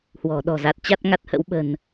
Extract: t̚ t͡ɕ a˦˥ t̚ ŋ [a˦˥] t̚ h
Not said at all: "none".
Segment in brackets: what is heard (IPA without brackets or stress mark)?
a˨˩